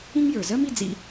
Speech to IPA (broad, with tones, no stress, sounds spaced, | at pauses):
ĩ˥ ŋ j ə˞˩ z ɜ˥ m i˧ d͡z ḭ˧